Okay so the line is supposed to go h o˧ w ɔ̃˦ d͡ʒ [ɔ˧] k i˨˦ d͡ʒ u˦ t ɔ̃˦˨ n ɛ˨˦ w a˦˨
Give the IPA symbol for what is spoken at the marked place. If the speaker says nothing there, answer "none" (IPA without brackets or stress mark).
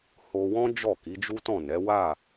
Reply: ɔ˦˨